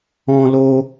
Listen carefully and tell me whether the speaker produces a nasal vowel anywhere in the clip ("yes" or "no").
yes